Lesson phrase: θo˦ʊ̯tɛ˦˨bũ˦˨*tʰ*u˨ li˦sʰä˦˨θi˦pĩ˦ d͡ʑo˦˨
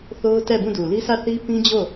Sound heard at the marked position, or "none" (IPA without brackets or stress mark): d